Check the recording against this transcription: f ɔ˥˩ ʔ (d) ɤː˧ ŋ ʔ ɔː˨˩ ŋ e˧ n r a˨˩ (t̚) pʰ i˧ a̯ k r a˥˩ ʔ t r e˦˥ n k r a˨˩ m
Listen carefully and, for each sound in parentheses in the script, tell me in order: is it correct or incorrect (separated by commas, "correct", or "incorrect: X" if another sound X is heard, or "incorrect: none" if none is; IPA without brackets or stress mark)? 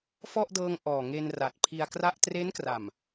correct, correct